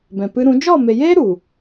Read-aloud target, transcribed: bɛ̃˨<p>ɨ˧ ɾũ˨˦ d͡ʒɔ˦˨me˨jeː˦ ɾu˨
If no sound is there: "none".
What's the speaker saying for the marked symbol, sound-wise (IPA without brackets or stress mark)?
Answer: p